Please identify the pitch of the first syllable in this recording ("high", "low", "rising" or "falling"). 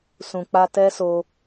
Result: low